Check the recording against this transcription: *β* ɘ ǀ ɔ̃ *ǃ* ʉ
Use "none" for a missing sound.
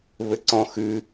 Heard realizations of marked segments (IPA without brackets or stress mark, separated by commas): β, x